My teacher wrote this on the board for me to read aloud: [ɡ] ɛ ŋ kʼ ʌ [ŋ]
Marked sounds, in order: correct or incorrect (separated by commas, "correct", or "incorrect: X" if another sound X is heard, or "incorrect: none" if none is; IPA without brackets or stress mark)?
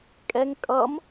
incorrect: kʼ, incorrect: m